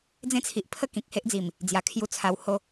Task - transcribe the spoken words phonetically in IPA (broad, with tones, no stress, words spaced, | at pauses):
d͡zẽ˦t͡sʰi˨ʔpʰə˥˧ kĩ˨k̚he˦ʔd͡zi˨˩m | d͡zja˨˩ kʰju˦t͡sʰa˧who˦